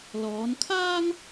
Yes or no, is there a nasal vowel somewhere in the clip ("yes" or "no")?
no